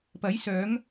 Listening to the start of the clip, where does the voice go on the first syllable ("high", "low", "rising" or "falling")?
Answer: rising